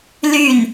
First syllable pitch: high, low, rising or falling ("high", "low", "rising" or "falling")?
falling